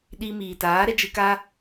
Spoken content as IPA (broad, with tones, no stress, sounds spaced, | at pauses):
ɗ i˧ m iː˨ t aː˨˦ ɾ ɛ˦ d͡ʒ ɨ˧ k a˦